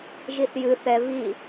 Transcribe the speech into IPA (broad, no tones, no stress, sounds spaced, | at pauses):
ʒ i θ j ɨ θ ɛ v i